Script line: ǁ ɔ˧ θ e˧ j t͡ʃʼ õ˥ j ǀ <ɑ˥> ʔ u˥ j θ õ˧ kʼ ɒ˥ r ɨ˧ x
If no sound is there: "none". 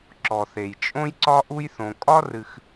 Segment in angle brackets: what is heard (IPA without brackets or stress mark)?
ɒ˥